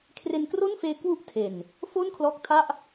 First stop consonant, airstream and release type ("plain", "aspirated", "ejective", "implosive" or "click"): aspirated